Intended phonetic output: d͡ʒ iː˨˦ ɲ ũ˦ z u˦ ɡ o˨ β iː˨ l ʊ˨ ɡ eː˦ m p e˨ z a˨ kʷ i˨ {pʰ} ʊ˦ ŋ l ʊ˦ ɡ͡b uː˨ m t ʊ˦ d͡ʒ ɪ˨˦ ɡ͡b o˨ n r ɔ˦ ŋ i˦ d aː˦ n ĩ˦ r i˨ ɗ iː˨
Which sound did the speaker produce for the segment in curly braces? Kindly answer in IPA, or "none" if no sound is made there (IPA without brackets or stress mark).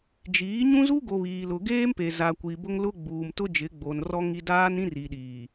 b